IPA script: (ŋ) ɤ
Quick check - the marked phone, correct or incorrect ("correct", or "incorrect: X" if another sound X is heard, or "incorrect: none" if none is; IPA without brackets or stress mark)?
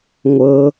incorrect: ŋʷ